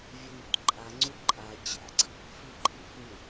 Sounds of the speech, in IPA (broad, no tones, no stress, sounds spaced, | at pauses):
vʲ ø n u t ǃʼ a ŋ͡ǀ u ǃʼ a t͡ɕ a̰ ǀ ḭ | f i ǃʼ ḭ f mʲ u